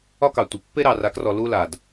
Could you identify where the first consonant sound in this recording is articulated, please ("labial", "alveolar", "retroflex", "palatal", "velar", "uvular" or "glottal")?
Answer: velar